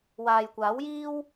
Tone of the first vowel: low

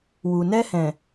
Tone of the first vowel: low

